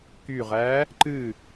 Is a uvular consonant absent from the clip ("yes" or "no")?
no